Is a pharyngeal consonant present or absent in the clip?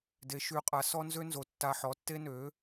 present